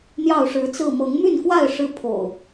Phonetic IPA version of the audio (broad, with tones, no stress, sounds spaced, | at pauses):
n̪ j ɑ˥˨ ʊ̯ ʂ ɻ̩˨˦ t͡s ɹ̩˥˨ m ɤ˨˦ ŋ m y˥˨ n k w a˥˨ ɪ̯ ʂ ɻ̩˦ pʰ o̰˨˩ ʊ̯